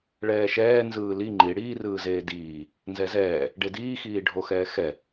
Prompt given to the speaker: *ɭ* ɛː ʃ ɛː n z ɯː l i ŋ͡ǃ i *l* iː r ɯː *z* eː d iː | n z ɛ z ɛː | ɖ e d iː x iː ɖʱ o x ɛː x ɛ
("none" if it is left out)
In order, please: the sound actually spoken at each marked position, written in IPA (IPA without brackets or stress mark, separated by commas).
ɭ, ɽ, z